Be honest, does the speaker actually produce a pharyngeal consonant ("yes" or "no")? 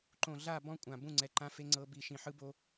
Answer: yes